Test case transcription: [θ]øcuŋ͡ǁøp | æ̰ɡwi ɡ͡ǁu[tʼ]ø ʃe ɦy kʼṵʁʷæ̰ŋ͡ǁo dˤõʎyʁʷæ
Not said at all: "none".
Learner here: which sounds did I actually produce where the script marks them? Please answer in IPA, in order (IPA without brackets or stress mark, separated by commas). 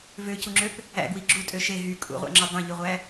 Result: v, tʼ